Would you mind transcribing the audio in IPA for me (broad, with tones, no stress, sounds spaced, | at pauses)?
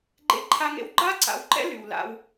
ɡ͡ǃ ḛ˦ ǃʰ a˦ ŋ ḛ˦ w ɡ͡ǃ a˦ ǀ a̰˨ w ǃ ɛ̰˦ l y˨ w l a̰˦ w